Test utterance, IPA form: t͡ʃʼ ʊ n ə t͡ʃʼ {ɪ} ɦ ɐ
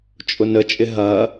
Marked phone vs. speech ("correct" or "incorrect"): correct